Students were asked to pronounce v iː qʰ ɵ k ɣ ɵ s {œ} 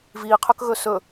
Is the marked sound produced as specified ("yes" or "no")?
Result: no